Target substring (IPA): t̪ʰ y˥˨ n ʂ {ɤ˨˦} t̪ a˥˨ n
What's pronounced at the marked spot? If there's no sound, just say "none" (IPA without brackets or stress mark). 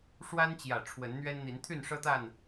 ɤ˦